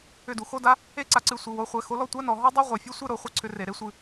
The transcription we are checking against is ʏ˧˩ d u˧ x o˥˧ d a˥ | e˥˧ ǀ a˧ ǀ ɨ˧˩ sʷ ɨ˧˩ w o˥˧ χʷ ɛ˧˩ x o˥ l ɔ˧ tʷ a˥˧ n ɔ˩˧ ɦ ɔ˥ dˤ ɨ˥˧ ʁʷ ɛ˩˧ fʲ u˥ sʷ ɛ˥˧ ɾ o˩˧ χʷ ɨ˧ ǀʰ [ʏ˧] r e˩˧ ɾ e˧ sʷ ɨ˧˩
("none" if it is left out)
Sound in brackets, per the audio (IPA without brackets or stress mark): ʏ˧